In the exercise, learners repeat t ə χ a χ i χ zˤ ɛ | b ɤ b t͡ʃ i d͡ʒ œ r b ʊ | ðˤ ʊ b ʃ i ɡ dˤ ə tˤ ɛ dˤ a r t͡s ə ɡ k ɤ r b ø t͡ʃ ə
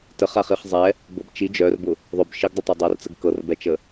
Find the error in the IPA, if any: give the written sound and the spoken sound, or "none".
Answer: ø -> ɛ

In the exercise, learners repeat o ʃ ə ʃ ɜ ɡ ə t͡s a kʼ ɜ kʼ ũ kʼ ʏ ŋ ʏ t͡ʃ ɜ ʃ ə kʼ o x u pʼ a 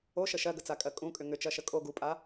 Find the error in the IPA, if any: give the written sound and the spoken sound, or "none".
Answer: x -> ɡ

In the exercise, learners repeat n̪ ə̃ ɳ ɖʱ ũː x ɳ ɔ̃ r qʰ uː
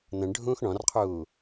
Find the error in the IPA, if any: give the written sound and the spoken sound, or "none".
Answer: none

